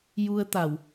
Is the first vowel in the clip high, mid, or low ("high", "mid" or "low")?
high